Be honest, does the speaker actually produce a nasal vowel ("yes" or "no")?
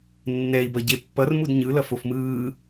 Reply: no